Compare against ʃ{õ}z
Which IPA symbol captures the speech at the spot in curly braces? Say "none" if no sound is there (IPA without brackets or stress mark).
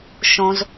õ